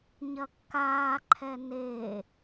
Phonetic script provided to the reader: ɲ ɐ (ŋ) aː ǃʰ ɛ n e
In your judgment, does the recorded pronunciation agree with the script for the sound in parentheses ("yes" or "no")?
no